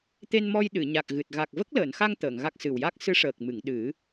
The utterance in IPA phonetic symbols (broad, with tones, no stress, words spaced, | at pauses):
t̪e˧nmɔ˧j ɗɨ˨˩˨ɲa˨˩k̚ɣɨ˨˩t̚ ɣa˨˩k̚ və˦˥k̚ləː˨˩˨nxa˧ŋ t̪əː˨˩˨ŋɣa˦˥k̚ sɨ˨˩wja˦˥k̚ sɨ˧˥ʂəː˨˩k̚mɨ˨˩˨ŋ ɗɨ˨˩˦